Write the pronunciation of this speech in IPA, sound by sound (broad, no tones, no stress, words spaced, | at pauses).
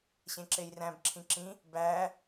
ɕẽǁejræ̃b ǁʰĩǁĩ | bæ